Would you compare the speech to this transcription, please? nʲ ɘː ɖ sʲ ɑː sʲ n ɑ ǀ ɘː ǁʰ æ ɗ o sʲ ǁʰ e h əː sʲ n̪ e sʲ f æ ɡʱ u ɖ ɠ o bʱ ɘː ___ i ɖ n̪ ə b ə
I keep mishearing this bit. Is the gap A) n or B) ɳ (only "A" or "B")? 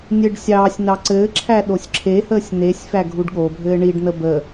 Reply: B